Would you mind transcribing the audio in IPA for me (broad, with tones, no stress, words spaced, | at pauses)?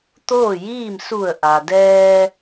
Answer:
t̪oː˥˨jiː˥˨m su˧˩ə̯ʔa˩dɛː˧